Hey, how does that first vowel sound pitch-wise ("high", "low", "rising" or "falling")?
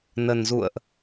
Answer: low